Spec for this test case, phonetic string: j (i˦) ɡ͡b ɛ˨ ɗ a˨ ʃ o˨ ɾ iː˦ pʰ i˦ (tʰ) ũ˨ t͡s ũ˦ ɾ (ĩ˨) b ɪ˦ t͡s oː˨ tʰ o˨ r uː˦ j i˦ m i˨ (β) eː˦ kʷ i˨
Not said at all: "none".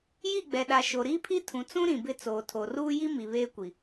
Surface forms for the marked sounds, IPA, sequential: i˦˨, tʰ, ĩ˨, β

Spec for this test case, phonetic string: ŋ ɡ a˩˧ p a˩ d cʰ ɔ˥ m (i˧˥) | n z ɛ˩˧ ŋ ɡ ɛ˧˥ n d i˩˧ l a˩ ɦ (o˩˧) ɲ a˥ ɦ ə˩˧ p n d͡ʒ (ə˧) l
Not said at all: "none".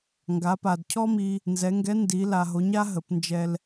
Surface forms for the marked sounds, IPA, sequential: i˧, o˩˧, ɛ˧

